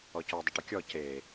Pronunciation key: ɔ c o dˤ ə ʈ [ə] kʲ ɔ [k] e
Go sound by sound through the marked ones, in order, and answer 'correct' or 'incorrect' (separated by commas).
correct, incorrect